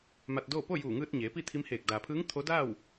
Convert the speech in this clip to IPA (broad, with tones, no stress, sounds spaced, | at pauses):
m a˧ t̚ d oː˥˨ p o˥˨ j uː˧˩ ŋ ɯː˧ t̚ ɲ eː˩˧ p i˥˨ t̪ʰ i˧˥ m h eː˧˩ k̚ d aː˩ pʰ ɯː˧˥ ŋ t̪ʰ o˧˥ d aː˥˨ w